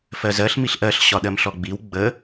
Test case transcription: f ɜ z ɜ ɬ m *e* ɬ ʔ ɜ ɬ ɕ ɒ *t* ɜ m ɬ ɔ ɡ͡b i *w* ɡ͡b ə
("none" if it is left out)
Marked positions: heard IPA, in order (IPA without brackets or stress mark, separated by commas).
i, ɗ, w